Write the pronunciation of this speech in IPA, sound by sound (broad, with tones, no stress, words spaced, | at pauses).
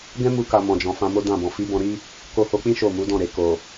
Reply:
ɡɛ̃˦ mu˧ka˨ mɔ̃˨d͡ʒɔ̃˨ fã˧mo˦dã˦˨bɔ̃˨ fi˨˦bɔ̃˧ɾi˦ | ko˧ho˧k͡pĩ˦ ʃo˦˨mu˨˦dɔ̃˦˨ ɾe˨ko˨